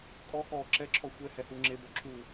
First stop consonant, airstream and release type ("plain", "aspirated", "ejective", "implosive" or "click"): ejective